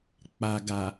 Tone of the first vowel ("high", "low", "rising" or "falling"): low